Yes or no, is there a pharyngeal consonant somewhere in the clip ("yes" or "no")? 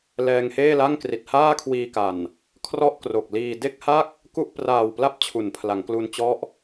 no